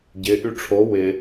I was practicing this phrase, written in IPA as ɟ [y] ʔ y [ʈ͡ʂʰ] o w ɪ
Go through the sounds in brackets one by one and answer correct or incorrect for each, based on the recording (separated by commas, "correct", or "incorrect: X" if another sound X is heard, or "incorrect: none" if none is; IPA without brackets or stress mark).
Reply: incorrect: ɪ, correct